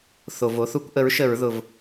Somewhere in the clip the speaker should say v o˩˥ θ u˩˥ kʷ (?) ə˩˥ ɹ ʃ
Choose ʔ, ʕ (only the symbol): ʔ